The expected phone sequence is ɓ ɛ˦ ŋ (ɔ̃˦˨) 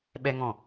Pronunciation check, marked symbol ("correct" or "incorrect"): correct